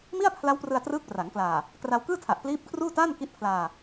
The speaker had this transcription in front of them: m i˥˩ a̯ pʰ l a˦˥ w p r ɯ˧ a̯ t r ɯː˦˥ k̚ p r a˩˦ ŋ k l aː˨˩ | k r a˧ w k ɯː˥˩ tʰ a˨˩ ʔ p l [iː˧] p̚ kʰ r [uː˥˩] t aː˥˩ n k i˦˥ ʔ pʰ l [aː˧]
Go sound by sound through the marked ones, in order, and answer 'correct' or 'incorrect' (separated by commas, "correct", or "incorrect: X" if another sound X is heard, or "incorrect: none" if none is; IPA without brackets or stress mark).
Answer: incorrect: iː˦˥, correct, correct